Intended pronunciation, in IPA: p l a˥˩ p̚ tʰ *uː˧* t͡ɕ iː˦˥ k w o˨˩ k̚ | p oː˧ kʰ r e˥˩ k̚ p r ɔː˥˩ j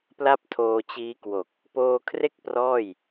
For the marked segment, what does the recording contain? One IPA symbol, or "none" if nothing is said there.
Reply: oː˧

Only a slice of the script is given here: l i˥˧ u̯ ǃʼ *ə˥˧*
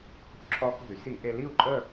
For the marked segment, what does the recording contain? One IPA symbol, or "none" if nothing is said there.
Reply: ə˥˧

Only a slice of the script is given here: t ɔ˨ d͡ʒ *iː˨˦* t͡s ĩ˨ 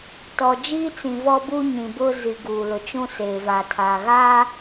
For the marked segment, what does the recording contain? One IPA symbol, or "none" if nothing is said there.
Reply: iː˦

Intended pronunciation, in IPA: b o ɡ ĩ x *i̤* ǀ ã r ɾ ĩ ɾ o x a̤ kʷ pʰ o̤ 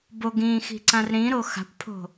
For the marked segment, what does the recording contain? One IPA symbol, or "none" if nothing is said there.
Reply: i̤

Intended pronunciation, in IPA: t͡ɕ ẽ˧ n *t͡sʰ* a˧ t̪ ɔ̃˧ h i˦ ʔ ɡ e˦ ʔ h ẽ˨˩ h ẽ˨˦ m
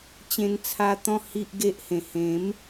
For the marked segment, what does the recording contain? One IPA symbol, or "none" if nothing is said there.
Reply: t͡sʰ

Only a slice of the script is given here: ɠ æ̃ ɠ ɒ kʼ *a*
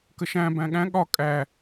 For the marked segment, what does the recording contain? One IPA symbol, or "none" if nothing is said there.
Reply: æ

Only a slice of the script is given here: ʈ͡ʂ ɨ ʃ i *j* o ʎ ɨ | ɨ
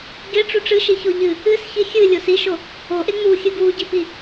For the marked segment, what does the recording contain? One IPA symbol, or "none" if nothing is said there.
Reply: ç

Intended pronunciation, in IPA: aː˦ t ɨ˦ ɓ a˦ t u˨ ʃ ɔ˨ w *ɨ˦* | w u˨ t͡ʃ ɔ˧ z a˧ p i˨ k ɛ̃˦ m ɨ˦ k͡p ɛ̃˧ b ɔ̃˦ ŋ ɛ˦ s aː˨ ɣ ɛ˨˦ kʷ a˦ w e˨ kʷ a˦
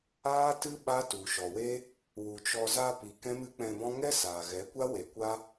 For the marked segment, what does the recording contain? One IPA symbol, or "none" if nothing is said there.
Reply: e˦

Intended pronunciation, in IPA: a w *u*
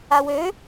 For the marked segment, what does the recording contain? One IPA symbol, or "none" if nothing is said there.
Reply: ø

